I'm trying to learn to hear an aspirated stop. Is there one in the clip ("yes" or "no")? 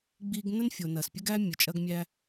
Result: no